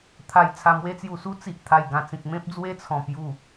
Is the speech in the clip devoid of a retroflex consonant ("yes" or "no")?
yes